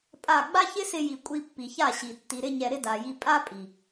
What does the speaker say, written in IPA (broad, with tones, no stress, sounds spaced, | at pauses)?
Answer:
pʼ a˦˨ ɡ͡b a˦ ç ɪ˦ s ɪ˧ j i˨ kʷʼ i˧ pː i˨ ç a˦˨ ɕ i˨ tː i˨ ɾ ɪ˧ ɲ ɛ˨ ɾ ɪ˦ d a˨ j i˧ pʼ a˦ pʼ i˨